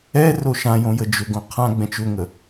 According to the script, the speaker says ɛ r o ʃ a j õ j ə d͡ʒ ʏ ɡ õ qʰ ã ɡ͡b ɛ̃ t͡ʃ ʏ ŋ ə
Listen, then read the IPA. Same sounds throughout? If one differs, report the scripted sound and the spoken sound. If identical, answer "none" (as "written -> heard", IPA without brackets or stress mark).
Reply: a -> ã